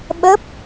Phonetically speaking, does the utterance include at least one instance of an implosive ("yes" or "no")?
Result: yes